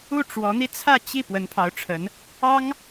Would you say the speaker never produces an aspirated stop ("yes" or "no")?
no